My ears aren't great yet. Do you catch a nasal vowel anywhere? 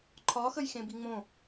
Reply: yes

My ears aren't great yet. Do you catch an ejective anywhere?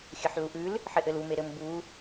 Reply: no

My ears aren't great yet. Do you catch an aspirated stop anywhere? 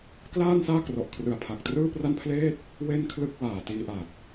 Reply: yes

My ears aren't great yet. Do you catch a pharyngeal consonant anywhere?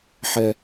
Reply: yes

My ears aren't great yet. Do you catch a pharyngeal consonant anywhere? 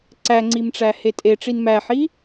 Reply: yes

